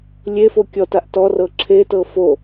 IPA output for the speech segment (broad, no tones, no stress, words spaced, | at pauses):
lʲefo kʲɔtaʔ tɔrɤ ǁʰetɤ fo